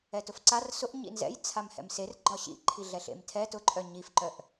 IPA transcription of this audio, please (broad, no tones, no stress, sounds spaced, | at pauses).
ɛ t ʊ f ǀ a r s ʊ ʔ ɲ ḭ n z ɛ̰ j t͡sʰ a m h ɛ̰ m s e r ɡ͡ǃ ɒ ɕ ḭ ǃʰ i ɮ ɛ ɬ ḛ m tʰ ɛ t ʊ ǃʼ œ ɲ i f ǃ œ ʔ